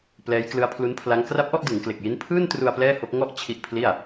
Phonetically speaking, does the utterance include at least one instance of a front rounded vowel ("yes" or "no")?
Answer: no